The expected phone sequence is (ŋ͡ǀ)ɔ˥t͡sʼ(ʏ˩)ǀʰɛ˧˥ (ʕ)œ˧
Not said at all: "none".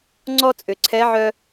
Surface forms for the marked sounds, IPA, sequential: ŋ͡ǀ, ʏ˩, ʕ

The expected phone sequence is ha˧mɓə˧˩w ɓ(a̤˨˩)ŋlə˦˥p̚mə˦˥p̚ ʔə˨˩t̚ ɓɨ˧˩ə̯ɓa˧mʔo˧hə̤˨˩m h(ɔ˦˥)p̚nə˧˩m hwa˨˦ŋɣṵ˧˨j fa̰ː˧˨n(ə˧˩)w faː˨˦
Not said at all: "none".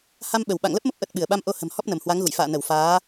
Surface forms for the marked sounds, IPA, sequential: a̰˧˨, ɔ˦˥, ə˧˩

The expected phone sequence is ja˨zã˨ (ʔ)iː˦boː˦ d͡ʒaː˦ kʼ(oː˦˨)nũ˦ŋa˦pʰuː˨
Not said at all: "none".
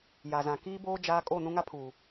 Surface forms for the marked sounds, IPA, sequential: k, oː˦˨

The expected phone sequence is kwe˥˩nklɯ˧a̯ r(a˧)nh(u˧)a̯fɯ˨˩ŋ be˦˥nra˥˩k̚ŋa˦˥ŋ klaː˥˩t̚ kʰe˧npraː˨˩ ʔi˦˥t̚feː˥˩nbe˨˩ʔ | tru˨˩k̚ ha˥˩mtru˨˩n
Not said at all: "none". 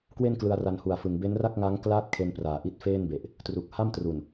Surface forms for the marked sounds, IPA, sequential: a˧, u˨˩

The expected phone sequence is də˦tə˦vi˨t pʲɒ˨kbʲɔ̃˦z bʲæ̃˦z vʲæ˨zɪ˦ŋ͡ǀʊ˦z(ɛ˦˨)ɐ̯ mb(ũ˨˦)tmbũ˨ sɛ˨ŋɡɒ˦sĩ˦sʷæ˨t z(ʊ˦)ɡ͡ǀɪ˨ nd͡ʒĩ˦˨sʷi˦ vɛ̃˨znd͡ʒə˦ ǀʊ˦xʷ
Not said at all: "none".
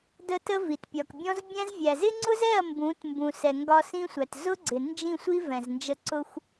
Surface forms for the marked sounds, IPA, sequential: ɛ˦˨, ũ˨˦, ʊ˦

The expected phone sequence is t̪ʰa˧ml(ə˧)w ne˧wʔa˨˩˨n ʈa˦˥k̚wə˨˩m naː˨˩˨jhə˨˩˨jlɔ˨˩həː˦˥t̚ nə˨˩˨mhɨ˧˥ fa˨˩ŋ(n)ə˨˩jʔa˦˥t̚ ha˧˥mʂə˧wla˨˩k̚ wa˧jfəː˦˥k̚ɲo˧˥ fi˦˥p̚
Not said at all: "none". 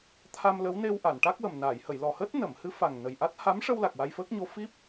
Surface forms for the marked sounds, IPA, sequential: ə˧˥, n

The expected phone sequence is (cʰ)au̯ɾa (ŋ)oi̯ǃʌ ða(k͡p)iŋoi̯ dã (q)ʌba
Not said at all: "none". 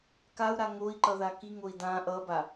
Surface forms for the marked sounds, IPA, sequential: k, ŋ, k, ʔ

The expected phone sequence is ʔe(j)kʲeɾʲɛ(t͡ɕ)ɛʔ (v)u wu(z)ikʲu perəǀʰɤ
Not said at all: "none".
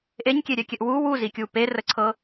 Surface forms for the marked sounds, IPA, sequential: ɲ, kʲ, w, z

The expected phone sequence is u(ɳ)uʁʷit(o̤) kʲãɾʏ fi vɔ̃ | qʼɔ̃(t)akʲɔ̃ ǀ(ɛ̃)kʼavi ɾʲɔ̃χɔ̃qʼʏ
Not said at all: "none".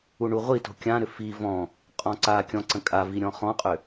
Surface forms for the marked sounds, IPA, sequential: ɳ, o̤, ǀ, ə̃

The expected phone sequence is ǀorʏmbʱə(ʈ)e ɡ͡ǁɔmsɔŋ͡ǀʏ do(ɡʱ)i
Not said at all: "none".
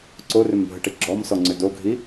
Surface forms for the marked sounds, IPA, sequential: ʈ, ɡʱ

